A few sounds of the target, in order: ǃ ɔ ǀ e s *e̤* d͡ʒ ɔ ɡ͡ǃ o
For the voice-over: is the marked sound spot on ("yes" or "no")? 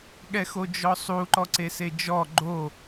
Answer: no